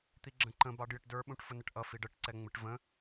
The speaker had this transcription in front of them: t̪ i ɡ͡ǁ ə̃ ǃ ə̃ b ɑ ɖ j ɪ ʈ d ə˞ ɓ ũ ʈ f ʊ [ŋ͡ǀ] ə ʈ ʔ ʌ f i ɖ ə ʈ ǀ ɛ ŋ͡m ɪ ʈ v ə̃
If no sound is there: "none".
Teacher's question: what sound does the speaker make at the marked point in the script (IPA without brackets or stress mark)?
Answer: n